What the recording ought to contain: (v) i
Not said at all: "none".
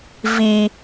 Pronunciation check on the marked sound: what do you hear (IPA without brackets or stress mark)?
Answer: v